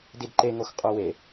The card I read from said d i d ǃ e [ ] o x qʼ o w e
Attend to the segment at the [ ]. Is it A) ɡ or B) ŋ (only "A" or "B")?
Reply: B